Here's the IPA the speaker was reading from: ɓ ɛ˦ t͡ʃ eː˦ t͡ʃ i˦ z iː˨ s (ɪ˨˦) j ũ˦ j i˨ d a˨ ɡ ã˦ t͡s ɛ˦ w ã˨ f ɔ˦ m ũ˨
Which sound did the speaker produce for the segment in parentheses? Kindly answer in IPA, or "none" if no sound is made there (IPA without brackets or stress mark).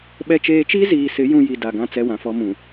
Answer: ɪ˨˦